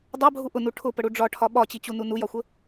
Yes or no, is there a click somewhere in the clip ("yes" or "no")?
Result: no